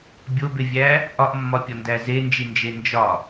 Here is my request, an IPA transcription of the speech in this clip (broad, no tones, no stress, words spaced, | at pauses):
bʲobevʲæ | ʔɒʔmːɒpʲɒndæ zend͡ʒind͡ʒe nd͡ʒɒ